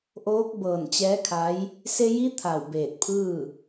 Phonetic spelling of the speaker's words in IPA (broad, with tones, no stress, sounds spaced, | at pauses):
ʔ oː˧˥ k̚ b ɤː˧˩ n t͡ɕ ɛː˧˥ kʰ a˧˥ j | s e˧ j i˧˥ t̪ʰ a˧˩ w b eː˧˩ t̚ pʰ ɯː˥˨